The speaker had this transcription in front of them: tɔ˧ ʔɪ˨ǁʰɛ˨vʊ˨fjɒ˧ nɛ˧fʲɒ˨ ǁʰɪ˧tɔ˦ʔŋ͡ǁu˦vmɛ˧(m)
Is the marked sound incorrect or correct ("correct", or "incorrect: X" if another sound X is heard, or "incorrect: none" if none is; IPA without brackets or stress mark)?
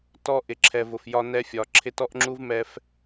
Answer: incorrect: f